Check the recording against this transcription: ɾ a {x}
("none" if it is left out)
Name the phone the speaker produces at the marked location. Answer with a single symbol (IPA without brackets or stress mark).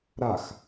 x